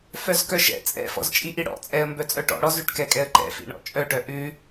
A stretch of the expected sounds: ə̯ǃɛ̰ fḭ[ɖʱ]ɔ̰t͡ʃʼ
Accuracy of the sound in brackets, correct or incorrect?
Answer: incorrect